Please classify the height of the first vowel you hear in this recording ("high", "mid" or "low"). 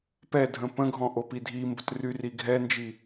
mid